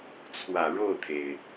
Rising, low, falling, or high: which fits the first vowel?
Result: low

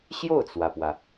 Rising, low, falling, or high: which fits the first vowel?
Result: falling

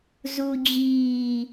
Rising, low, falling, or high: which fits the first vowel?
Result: low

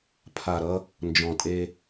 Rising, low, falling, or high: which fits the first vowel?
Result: low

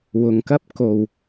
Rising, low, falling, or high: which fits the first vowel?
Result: low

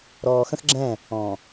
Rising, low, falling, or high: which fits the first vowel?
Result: low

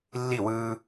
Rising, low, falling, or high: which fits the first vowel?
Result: falling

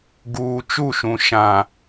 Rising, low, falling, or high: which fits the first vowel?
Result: high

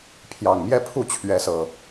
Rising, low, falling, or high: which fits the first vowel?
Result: low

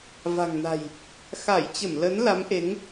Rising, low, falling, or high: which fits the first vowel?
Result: low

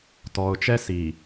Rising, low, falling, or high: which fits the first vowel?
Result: low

